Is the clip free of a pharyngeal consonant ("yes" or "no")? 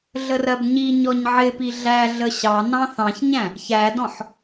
no